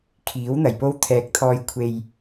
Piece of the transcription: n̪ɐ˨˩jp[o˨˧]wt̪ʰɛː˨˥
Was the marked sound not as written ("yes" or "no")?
yes